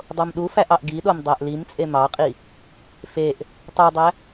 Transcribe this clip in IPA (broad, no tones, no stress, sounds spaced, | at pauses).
dˤ o m ɗ u f æ ʔ ɑ ʔ ɡ i ɗ o m dˤ æ ʔ l i m t͡sʼ e m ɑ qʼ i | f e ʔ | tˤ o dˤ æ